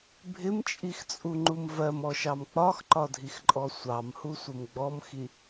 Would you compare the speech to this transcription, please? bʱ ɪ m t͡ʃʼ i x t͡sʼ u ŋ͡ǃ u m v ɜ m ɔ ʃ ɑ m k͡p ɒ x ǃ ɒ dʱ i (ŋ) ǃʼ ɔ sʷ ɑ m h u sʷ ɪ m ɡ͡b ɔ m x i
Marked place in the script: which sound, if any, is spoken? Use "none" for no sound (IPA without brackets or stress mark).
x